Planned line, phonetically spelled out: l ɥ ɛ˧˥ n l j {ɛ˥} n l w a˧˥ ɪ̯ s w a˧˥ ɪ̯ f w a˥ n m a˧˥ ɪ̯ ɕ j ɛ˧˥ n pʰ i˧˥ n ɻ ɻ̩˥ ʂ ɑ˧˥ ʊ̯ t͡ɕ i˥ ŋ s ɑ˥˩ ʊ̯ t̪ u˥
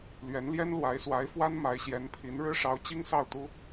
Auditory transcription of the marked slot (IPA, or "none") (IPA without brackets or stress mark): ɛ˥